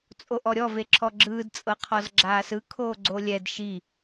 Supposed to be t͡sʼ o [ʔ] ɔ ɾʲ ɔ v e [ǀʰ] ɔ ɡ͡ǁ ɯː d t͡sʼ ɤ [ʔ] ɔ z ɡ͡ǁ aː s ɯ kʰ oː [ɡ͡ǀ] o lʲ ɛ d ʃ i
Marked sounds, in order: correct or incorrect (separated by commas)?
correct, incorrect, incorrect, correct